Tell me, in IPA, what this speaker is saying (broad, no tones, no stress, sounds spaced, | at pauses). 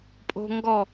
pʼ o̤ ŋ ɡ ɔ